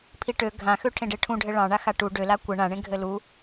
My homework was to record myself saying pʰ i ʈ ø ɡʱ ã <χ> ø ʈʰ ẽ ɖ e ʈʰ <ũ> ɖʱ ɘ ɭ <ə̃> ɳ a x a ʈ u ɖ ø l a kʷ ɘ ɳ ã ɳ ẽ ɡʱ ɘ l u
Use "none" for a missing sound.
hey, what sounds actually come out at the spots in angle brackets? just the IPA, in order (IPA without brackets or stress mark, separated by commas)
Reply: x, ũ, ɑ̃